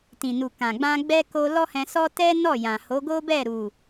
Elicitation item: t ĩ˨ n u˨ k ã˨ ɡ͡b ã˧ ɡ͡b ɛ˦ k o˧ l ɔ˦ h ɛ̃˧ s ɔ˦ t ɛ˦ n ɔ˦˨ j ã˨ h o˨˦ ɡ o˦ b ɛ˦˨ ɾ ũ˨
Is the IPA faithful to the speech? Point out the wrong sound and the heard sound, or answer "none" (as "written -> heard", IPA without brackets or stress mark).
ũ˨ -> u˨